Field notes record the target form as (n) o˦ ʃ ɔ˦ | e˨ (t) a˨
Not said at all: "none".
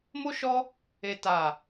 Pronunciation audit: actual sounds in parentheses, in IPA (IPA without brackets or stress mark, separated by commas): m, t